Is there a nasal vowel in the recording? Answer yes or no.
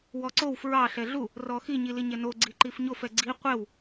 no